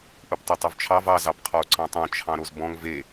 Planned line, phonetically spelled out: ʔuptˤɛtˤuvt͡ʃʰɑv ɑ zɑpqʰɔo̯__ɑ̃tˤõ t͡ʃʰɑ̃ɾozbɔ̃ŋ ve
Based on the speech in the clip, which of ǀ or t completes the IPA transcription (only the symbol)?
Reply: ǀ